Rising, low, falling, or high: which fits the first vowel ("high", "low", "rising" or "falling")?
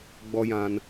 high